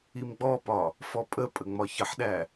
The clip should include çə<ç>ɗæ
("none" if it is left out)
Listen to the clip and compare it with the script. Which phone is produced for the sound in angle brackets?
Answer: ħ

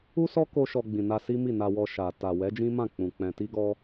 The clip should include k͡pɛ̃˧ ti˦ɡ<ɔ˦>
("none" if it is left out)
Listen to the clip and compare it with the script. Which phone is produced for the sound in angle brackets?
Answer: ɔ˦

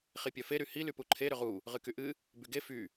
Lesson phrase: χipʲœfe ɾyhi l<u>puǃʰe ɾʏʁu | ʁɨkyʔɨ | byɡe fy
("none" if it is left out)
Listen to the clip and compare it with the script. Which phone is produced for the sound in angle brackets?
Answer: y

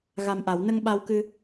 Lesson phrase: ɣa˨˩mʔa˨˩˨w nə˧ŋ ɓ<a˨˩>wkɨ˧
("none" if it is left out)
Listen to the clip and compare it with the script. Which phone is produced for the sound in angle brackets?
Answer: a˧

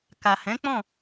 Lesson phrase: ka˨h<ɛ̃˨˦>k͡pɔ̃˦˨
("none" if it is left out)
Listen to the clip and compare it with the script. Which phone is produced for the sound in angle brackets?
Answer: ɛ̃˨˦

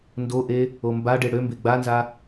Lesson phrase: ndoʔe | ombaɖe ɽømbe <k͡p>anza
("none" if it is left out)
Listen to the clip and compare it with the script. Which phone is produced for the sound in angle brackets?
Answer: ɡ͡b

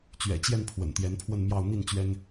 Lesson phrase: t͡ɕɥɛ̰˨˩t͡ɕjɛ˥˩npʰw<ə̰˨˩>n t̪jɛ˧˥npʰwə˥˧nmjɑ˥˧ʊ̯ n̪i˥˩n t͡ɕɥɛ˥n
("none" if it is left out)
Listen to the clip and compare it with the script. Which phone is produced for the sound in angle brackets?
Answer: ə̰˨˩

